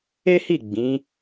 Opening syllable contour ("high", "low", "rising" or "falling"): high